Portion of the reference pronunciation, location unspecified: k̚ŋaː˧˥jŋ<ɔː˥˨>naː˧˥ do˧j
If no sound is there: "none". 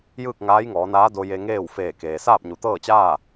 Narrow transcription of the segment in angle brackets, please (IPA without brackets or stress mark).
ɔː˩˧